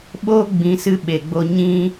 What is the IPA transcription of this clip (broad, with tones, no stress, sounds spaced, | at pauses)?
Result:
ɓ oː˦ ɡ͡b ĩ˨˦ s ɨ˧ ɓ e˨ ɡ͡b o˧ ɲ ĩ˦